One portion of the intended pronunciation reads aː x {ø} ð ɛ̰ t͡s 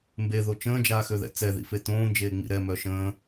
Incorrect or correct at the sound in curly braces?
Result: correct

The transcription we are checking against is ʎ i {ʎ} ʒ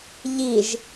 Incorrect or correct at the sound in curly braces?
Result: incorrect: none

